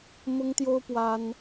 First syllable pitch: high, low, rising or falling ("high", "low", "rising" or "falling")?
high